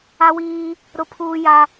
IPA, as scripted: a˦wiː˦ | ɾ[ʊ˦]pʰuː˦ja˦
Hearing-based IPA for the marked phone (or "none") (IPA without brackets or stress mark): ʊ˦